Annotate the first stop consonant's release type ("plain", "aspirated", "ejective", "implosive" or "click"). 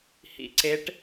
click